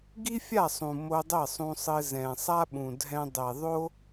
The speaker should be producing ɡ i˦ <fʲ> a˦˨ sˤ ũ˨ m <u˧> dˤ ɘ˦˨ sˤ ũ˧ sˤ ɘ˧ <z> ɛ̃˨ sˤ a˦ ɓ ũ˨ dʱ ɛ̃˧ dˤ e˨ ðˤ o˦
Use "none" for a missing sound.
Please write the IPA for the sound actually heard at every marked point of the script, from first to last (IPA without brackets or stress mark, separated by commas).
fʲ, o˧, z